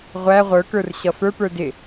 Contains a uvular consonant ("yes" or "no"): yes